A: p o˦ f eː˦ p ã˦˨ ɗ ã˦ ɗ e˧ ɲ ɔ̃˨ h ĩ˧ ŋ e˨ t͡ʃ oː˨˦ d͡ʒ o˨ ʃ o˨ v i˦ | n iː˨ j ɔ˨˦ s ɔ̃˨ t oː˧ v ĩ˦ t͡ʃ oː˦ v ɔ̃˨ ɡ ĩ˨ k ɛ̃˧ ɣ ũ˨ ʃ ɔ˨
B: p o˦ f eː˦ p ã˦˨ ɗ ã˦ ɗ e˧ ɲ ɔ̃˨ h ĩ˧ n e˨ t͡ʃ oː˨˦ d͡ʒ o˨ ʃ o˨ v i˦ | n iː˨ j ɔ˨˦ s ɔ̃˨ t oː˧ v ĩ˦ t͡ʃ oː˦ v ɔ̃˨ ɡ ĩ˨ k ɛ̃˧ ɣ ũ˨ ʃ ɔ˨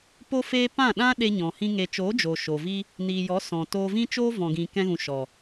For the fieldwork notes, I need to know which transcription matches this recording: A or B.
A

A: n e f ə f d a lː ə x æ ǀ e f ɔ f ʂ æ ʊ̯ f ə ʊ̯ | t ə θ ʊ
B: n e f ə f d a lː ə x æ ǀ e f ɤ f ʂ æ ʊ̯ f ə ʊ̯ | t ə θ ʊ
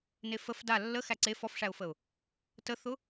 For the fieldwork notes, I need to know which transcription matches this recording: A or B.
A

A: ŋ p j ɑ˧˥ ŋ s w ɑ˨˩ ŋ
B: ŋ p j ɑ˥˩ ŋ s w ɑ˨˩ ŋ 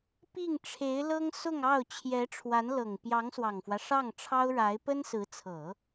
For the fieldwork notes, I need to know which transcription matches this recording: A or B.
A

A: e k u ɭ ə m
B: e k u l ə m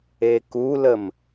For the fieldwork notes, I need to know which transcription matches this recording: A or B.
B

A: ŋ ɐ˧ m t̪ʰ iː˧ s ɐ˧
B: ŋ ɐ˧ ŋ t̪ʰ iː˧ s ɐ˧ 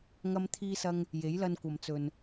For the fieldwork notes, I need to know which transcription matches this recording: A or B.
A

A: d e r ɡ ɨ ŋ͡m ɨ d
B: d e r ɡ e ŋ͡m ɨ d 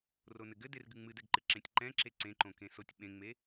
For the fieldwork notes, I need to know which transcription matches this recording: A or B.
A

